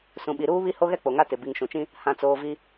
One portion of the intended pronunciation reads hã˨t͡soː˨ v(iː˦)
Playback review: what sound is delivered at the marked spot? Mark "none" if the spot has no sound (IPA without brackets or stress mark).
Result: i˦